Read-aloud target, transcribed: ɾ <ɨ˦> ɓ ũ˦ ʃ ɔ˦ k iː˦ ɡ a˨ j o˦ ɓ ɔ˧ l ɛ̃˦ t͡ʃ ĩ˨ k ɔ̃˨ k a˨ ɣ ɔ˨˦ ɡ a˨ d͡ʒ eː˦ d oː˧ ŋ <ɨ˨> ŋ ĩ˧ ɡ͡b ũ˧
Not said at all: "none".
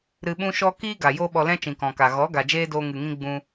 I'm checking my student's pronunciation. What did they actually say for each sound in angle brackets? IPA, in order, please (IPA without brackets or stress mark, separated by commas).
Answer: ɨ˧, ɨ˨